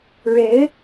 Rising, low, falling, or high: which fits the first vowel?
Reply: rising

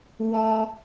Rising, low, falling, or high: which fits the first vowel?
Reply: high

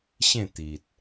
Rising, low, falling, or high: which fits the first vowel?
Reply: falling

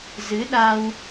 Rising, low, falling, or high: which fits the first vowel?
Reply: rising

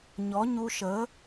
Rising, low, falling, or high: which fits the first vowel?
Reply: rising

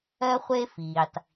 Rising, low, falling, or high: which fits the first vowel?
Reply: high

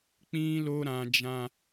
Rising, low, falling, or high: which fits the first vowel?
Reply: high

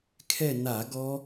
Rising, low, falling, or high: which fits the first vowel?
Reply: falling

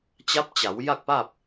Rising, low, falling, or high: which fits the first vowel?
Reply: rising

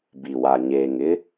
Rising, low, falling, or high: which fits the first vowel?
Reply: low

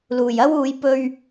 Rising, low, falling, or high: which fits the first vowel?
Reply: low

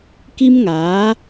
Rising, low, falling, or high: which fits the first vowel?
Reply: high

